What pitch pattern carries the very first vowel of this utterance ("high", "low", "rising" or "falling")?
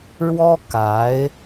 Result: high